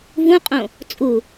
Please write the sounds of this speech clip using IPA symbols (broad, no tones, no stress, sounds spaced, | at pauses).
v ũ qʼ õ | t͡sʼ u